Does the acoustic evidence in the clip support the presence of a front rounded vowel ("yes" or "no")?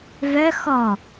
yes